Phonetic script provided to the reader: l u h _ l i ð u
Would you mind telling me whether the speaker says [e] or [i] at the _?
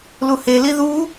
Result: e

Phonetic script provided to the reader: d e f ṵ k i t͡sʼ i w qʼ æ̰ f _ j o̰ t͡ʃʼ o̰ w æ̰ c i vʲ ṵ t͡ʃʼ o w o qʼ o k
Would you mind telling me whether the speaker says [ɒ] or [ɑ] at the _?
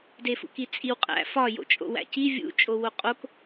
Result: ɒ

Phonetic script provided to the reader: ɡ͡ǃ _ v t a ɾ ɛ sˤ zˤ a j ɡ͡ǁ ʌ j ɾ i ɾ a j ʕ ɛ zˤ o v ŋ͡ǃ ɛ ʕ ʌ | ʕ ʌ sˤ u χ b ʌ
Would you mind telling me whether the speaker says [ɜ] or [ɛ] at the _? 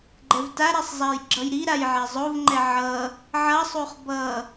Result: ɛ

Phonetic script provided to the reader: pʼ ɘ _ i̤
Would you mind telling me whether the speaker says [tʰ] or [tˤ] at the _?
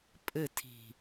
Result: tʰ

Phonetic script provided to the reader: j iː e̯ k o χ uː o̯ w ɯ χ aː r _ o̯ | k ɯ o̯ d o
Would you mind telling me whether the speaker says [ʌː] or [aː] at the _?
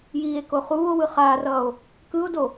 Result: ʌː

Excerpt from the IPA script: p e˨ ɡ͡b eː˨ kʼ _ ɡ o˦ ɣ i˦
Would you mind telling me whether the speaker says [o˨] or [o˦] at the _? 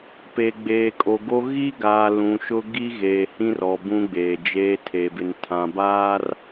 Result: o˨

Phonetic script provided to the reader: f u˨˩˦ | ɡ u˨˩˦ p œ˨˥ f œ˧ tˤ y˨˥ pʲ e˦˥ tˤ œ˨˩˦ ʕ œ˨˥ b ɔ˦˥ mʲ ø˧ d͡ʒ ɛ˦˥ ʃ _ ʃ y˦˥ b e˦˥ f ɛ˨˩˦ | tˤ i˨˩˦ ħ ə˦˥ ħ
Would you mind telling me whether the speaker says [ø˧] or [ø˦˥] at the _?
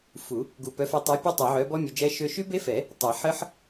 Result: ø˦˥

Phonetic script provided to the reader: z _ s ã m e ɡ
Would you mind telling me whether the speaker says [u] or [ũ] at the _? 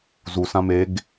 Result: u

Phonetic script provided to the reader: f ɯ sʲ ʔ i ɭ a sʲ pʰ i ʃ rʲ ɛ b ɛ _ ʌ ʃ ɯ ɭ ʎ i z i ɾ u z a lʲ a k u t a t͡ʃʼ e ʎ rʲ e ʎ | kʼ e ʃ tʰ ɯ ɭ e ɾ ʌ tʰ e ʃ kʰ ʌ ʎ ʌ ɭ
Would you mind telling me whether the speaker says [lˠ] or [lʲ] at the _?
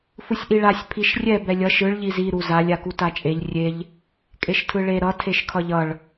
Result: lʲ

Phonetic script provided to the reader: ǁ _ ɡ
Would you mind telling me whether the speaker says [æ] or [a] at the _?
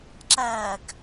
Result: æ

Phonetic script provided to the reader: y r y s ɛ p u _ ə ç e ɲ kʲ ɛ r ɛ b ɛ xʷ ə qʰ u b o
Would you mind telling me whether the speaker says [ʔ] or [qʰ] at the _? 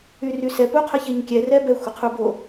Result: qʰ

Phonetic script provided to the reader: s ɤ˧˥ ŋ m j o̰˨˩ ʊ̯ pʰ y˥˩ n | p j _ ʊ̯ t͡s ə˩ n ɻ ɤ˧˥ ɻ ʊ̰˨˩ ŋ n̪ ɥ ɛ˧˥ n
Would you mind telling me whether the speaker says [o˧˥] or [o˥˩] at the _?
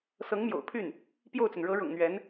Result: o˥˩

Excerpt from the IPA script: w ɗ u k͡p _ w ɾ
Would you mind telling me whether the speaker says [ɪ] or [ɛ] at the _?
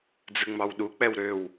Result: ɛ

